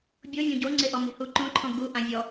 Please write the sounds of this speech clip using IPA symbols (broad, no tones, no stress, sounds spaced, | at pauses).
bʲ o vʲ õ ɟ o ŋ͡ǀ e ʔ ɔ m e̤ h u ǃ õ ǃʰ ɔ̃ ɡ u ʔ ã vʲ ɔ